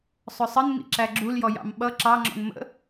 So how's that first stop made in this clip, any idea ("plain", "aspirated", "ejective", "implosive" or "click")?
click